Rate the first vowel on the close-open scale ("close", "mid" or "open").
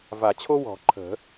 open